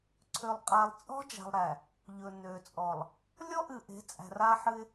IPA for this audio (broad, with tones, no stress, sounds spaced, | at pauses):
ǀʰ ø˨ lˠ qʼ a˨ lˠ t͡sʼ ɔ̤˦ d͡ʒ a̤˨ lˠ ɾ æ˨ | ʎ ɵ˨ n ø˨ t͡sʼ ɔ˨ lˠ | lʲ ɔ˦ ʔ ɨ˨ ʔ e̤˨˦ t͡sʼ æ̤˨ r a˦ ħ ɨ˦ ɪ̯